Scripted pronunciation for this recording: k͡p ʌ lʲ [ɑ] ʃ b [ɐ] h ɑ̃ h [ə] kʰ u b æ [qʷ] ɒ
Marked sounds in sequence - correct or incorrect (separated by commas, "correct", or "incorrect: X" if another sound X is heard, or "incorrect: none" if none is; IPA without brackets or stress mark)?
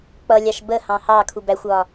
correct, incorrect: ə, incorrect: ɑ, incorrect: xʷ